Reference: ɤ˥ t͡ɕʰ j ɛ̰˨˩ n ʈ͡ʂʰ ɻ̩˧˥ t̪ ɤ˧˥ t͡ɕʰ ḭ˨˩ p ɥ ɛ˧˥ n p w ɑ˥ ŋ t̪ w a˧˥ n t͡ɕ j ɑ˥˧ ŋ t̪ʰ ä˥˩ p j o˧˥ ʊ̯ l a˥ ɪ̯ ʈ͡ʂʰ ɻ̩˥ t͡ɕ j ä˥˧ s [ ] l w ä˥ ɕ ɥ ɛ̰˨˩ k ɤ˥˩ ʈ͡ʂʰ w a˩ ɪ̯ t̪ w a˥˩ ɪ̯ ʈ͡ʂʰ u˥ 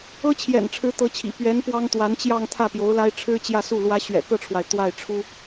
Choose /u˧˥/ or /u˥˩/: u˥˩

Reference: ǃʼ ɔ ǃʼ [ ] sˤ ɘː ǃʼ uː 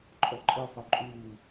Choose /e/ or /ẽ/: e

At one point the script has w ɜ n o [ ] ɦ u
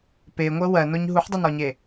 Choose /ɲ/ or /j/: ɲ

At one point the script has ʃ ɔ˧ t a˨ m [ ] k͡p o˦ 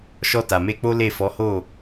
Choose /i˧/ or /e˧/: e˧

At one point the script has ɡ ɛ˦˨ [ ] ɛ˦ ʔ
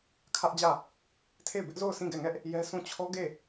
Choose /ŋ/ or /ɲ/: ŋ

